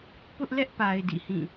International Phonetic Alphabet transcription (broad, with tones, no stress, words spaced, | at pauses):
pʊ˦ʔlɛ˦ʔpa˨ɪ̯ dḭ˦˨hĩ˦˨